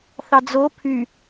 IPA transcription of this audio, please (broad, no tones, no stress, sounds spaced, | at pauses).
θ ɑ d͡z o pʰ y